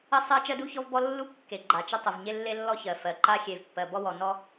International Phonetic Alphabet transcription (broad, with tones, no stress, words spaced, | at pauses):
ə˥sˤɜ˥ t͡ʃɜ˥du˥çɔ˥vbɔ˥ lːu˥ kːe˩ ɡ͡ǃa˩t͡ʃə˥tˤə˩v ɲe˥lːe˥lːɔ˥çɜ˩ fɜ˩ǃa˥ xʲe˩vpːɜ˩ bɔ˥wɔ˩nɔ˥